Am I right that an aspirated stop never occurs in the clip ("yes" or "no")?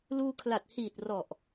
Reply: no